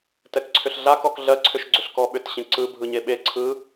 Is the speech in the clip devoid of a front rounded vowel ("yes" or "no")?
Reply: no